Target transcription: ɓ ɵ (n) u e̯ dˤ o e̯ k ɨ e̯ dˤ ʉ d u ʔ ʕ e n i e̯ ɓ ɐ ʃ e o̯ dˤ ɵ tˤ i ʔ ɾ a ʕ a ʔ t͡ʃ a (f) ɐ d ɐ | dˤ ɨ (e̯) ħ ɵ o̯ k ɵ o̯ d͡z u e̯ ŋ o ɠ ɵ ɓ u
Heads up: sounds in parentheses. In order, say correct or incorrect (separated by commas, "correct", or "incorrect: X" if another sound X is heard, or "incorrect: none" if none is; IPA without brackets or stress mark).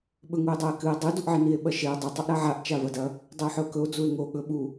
incorrect: ŋ, incorrect: v, incorrect: o̯